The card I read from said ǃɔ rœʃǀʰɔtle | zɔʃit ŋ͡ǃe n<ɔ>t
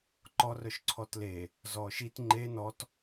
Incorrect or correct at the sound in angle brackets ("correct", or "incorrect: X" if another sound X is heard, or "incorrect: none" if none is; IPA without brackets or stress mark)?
correct